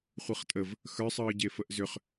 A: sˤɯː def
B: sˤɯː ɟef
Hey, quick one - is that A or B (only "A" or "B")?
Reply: B